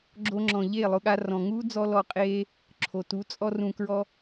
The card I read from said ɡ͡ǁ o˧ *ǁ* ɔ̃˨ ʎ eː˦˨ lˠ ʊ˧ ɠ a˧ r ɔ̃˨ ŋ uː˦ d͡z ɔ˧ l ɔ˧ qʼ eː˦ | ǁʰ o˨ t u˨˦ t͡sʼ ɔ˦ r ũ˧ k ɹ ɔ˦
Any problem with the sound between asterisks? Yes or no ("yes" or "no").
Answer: yes